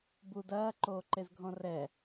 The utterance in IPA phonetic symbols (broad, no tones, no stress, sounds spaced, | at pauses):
b u d ɐː ǃ oː ǃ e z ɡʱ ɔ̃ r ɛ